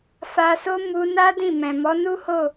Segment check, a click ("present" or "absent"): absent